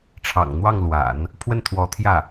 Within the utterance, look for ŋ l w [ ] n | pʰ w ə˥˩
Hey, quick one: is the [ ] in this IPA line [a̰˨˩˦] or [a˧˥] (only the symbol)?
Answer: a̰˨˩˦